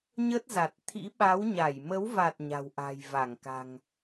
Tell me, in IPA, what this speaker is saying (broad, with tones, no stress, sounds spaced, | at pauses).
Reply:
ɲ ə˦˥ t̚ z a˨˩ t̚ t̪ʰ ḭ˧˥ ɓ a˨˦ w ɲ a˧˩ j m ə˨˦ w v a˨˩ t̚ ɲ a̤˨˩ w ʔ a̤˨˩ j v a˧˩ ŋ k a̤˨˩ ŋ